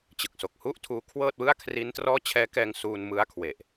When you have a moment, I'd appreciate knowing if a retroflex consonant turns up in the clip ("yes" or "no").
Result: no